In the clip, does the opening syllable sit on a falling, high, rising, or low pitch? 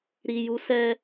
low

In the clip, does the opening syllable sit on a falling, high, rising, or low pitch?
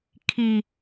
low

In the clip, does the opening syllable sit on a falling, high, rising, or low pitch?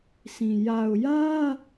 low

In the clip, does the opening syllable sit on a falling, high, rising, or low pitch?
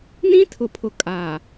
high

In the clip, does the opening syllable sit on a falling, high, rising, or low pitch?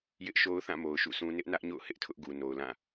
high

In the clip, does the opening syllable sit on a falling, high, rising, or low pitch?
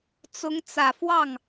rising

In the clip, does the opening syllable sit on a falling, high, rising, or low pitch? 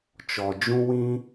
low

